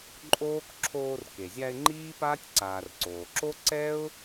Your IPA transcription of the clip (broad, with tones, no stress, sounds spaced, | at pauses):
ǃʼ oː˥ k ǁʰ oː˦ r k e˩ zʲ a˦ ɪ̯ ŋ͡ǃ iː˥ p aː˥ tʲ ǀ aː˨ r ǀ oː˩ ǁ o˥ ǀ ɛ˥ ʊ̯